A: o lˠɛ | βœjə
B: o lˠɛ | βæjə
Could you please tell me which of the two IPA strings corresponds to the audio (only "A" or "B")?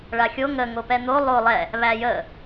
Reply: B